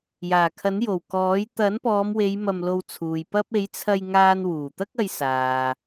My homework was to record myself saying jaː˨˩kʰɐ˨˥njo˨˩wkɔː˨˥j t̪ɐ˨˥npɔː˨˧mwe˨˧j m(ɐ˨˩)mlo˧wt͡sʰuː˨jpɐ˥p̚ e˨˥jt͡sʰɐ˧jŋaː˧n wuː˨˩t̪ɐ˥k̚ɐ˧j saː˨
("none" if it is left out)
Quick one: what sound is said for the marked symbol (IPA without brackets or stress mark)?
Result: ɐ˧